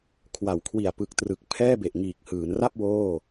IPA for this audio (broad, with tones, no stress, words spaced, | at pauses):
kʰwa˩˦wkʰwi˨˩a̯pɯ˨˩k̚trɯ˨˩k̚ pʰɛː˥˩be˨˩ʔŋiː˨˩k̚ hɯː˩˦nra˥˩p̚ woː˥˩